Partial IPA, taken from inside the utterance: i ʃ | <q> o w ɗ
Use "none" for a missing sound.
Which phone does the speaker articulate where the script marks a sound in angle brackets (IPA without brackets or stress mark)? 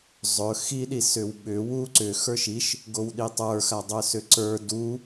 ɡ